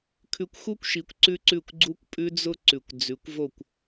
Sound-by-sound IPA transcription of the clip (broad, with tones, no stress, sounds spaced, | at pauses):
kʰ ʉ˧ kʷ x u˦ kʷ ʃ i˨˦ kʷ ǀ ʉ˦ ǀ ʉ˦˨ kʷ ɡ͡ǀ u˧ kʷ pʼ ʉ˧ d͡z ʊ˦ ǀ ʉ˨ kʷ d͡z ʉ˨˦ kʷ v o˦˨ kʷ